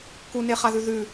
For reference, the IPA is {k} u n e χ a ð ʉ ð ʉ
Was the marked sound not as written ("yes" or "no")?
no